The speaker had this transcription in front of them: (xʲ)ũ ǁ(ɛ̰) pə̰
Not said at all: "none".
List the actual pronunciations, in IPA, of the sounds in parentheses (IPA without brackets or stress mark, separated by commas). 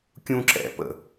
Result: kʲ, ɛ̰